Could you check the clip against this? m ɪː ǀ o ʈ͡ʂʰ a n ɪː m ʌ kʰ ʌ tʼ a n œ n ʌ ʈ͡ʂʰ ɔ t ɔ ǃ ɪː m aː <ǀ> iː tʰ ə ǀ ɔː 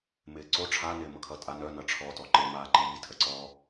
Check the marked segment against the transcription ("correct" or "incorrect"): incorrect